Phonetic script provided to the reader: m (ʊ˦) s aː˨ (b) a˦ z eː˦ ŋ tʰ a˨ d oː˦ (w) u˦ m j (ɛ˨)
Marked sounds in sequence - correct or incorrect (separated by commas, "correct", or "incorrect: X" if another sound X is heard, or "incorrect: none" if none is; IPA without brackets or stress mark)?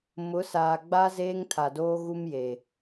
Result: incorrect: ʊ˨˦, incorrect: ɡ͡b, incorrect: ɣ, incorrect: e˨